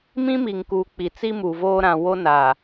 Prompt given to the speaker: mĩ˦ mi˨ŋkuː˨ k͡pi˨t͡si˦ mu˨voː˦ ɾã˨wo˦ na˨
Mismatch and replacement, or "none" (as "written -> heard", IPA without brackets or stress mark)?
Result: none